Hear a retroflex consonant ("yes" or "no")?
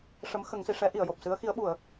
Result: yes